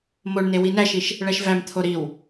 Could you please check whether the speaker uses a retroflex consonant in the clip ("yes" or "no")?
yes